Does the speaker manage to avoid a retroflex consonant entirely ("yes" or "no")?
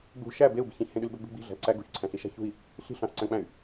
yes